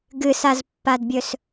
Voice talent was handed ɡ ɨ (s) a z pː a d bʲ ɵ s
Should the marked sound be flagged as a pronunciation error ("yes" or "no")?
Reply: no